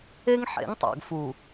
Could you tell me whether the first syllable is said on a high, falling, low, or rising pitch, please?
high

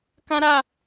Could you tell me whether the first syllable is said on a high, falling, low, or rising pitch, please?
high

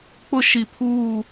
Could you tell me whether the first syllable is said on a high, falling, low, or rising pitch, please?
high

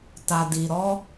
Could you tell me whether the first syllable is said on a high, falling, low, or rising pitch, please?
low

